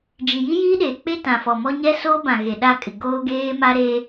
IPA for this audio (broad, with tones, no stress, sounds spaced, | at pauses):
d͡ʒ i˨ j i˦ j iː˦ ɗ eː˨ k͡p e˦ t ã˨ f ɔ˨ m ɔ˦ ɲ ɛ˦ s oː˦ b ã˨ ɣ e˨ ɗ a˦˨ kʼ ɪ˨ ɡ oː˦ ɡ eː˦ m a˦ ɾ eː˦